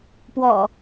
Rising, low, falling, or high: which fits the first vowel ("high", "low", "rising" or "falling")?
low